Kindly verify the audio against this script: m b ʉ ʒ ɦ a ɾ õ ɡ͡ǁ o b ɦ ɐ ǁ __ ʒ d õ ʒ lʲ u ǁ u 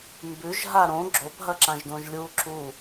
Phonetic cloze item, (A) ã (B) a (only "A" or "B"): A